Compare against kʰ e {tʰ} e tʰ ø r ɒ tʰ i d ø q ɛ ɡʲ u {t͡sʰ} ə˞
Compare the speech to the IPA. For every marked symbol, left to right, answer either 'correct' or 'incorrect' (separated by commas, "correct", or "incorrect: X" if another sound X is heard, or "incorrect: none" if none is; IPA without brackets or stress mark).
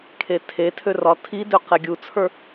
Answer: correct, correct